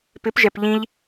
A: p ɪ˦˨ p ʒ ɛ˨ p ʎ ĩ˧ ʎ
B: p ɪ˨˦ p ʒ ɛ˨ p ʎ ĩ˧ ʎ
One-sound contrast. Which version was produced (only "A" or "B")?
B